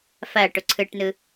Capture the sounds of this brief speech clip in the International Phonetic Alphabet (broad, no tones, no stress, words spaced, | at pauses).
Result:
fɐːʈʊ ǀʰɯʈnɯ